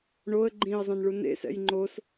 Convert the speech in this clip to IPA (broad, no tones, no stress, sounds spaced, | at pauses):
ɳ o ə̯ ɡ͡ǃ ĩ ə̯ zˤ ẽ n ɭ u n ḛ s ɛ̰ j ŋ͡ǃ o s